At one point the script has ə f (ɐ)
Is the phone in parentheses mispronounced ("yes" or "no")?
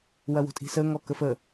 yes